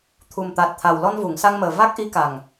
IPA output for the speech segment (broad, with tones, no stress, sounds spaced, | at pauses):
t̪ʰ u˨˩ m t̪ a˨˩ t̚ t̪ʰ a˨˩ w l ɔ˧ n v u˨˩˨ ŋ s a˧ ŋ m əː˨˩ v a˦˥ k̚ ʔ i˧˥ k a˨˩ ŋ